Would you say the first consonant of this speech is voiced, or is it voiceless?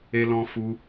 voiced